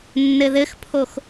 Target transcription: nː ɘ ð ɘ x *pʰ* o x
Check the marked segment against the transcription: correct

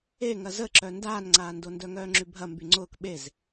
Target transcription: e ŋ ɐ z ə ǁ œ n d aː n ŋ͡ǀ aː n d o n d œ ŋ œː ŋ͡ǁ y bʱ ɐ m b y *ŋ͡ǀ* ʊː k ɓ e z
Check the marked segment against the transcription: correct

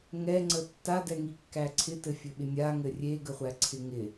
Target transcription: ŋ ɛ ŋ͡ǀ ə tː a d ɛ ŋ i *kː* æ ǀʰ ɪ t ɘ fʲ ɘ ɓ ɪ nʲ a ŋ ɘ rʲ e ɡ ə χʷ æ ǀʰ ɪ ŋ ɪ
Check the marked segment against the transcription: correct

